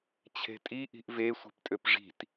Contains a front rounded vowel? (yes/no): yes